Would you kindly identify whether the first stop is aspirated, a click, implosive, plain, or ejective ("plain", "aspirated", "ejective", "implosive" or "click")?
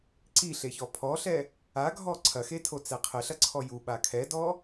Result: click